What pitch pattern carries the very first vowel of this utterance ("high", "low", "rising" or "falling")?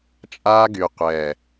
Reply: high